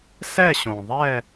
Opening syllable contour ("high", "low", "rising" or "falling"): falling